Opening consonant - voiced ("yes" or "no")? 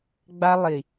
yes